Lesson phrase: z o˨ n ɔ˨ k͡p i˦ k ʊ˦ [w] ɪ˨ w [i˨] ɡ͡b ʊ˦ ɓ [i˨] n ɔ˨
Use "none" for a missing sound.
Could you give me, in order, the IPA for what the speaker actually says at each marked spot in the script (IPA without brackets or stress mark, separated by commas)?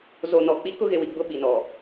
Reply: ɣ, i˨, i˨